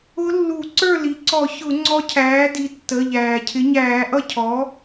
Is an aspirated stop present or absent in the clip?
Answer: present